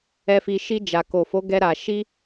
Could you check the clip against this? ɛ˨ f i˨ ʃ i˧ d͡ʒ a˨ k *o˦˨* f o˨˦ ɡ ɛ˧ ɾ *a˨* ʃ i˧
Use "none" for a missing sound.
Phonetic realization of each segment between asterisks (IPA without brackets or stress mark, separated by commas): o˨, a˨